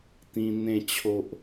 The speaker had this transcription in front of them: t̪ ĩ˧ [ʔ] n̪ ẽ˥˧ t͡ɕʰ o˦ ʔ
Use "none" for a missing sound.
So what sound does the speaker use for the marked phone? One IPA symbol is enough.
none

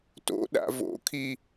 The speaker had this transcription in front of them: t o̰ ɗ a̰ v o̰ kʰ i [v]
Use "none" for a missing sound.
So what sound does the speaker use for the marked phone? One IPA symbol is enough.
none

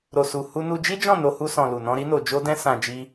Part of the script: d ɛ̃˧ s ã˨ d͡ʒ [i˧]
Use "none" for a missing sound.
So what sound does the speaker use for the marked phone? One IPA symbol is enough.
i˧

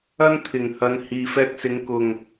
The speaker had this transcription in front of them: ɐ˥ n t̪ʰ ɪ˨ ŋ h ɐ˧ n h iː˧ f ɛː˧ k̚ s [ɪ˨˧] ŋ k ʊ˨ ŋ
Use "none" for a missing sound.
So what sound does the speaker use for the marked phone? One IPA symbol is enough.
ɪ˨˧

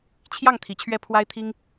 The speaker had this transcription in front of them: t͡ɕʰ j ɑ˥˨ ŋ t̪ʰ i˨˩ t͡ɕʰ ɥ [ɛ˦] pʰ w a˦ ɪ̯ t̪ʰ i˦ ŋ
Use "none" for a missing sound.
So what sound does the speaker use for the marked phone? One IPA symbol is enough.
ɛ˥˨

